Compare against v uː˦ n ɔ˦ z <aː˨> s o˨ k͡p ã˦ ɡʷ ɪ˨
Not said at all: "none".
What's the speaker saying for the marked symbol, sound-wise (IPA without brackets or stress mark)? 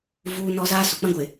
aː˦